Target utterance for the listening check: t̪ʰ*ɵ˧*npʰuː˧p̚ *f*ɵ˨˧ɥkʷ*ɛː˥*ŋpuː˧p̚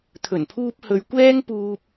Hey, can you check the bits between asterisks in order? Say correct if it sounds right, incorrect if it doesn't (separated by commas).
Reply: incorrect, incorrect, correct